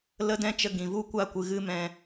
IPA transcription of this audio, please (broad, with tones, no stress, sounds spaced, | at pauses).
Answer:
l ə˦ d ɛ̃˦ t͡ʃ ə˧ ɡ ĩ˨ v u˦ kʷ a˦˨ kʷ ɨ˨ ɣ ɨ˦ m ɛ̃˧